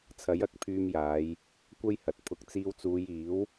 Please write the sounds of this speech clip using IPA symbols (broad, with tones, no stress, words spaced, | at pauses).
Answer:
t͡sʰɐ˨˥jɐ˨˥k̚pʰyː˧mjaː˨˧j | kʷɐ˥jhɐ˨t̚pʰʊ˧k̚ t͡siː˧wt͡suː˨˧jiː˨˥w